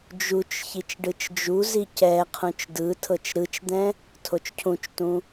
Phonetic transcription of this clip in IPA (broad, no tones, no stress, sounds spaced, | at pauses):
d͡ʒ u t͡ʃ ç i t͡ʃ ɖ ɯ t͡ʃ d͡ʒ u z i c ɛ qʰ ũ t͡ʃ d ɯ tʰ ɤ t͡ʃ ɾ ɯ t͡ʃ d̪ ɛ̃ | tʰ o t͡ʃ cʰ ũ t͡ʃ t ũ